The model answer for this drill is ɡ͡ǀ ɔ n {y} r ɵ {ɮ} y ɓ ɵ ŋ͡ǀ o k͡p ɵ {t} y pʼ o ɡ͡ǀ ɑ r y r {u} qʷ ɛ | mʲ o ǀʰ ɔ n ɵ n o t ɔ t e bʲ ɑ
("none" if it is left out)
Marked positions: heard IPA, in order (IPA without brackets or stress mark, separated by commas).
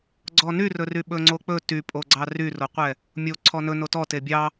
y, r, t, o